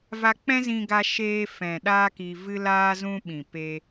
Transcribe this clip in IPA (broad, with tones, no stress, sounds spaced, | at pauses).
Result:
v a˧ k͡p ɛ̃˦ z ĩ˧ ɡ a˧ ʃ eː˧ f ɛ̃˨ ɗ aː˦ k i˧ v ɨ˦ l aː˦ z ũ˦ ɓ ĩ˨ p e˧